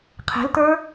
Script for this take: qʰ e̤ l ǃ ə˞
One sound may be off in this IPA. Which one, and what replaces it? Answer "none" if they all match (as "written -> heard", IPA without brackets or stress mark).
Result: ǃ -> t